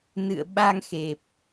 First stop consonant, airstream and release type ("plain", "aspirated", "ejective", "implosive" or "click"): implosive